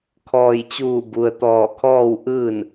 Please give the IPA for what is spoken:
kʰɔː˧˩j t͡ɕuː˧˩bu˩ə̯ t̪ɔː˧˩kʰɔː˥˨w ʔɯː˥˨n

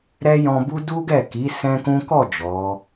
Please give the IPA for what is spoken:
ɾɛ˦jɔ̃˧bu˦ du˦ɡɛ˦˨ ki˨˦ sɛ̃˦kũ˦ kɔ˦˨ d͡ʒɔ˨˦

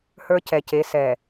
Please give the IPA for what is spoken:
hə˞˦cɛ˨ ce˨˦ sɛ˨

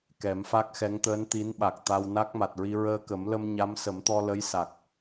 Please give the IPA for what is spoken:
kɛ˨˩˦mfa˦˥k̚xɛ˧˥ŋ t̪əː˧˥nt̪i˧˥nɓa˨˩k̚t̪a˧w na˦˥k̚ma˨˩t̚ɹi˧ ɹəː˧kə˨˩˦mlə˧mɲa˧˥m sə˨˩˦mt̪ɔ˧lə˧˥j sa˨˩k̚

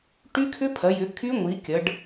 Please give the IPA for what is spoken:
ʈy˦˥kʰʏ˦˥pʰɐ˩˧jʏ˩˧ kʰy˦˥ŋʷi˩˧kʲɐ˩˧ɖ

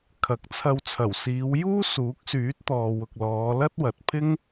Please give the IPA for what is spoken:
kʰɐ˨˥k̚t͡sʰɐ˧w t͡sʰɐ˨˩wsiː˨˧w juː˥suː˨˥k̚syː˨˥t̚t̪ɔː˨ wʊ˨k̚lɔː˨˧ lɐ˥t̚wɐ˨t̚pʰɪ˥ŋ

